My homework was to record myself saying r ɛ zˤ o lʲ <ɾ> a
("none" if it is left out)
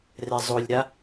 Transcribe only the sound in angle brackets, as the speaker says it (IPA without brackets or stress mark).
ɾ